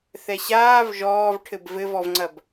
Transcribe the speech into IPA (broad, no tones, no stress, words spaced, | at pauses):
θɛɕaːv ʒɔːv ʈʰɘbvɘvɔvŋ͡ǀɐb